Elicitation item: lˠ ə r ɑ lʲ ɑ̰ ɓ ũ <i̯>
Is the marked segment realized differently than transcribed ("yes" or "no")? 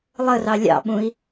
no